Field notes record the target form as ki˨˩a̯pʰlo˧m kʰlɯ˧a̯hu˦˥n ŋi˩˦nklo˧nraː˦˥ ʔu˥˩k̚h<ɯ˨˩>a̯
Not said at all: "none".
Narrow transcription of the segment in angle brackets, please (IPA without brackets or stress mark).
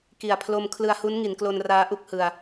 ɯ˧